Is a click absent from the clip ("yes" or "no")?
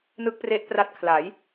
yes